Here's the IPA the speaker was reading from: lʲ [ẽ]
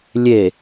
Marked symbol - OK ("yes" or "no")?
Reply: no